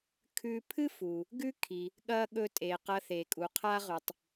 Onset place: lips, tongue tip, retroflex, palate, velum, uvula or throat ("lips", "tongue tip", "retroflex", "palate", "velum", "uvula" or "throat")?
velum